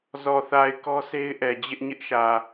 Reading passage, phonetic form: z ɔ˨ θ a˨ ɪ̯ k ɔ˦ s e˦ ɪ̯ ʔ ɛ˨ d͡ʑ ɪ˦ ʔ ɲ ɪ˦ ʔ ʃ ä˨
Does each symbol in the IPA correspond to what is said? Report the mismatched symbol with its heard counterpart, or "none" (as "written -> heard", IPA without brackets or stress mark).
none